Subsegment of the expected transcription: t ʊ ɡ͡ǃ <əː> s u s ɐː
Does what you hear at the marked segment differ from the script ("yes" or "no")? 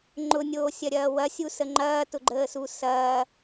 no